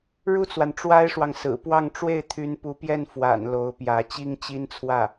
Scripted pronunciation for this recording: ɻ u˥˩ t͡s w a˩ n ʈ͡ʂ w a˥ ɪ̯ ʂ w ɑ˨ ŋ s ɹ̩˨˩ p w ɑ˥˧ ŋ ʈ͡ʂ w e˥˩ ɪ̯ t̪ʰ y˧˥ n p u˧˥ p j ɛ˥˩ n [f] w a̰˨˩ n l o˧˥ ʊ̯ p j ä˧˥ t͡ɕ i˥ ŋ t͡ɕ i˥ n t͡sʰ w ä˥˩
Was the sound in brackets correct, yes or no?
yes